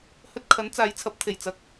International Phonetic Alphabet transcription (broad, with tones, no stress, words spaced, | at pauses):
hɵ˧t̚kʰɐ˨˥nt͡saː˨˧jt͡sʰɐ˨˥p̚ t̪ʰe˨˩jt͡sɐ˧k̚